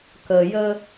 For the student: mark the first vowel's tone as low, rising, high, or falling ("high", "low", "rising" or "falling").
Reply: low